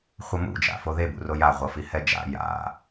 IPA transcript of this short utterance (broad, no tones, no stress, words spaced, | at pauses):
χʷʌmṵ d͡ʒa̰foðe bṵroja ʁʷʌfihɛd͡ʒa̰ ja̰